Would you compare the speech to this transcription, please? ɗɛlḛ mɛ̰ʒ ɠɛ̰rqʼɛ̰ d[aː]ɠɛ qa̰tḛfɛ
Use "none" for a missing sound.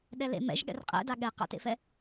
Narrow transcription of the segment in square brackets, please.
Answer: a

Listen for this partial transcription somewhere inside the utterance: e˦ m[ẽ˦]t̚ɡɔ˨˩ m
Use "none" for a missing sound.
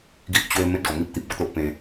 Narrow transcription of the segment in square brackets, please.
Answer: ẽ˦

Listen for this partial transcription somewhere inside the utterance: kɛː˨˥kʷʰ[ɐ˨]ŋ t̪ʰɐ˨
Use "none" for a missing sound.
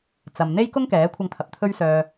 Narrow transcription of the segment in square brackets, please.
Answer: ɐ˧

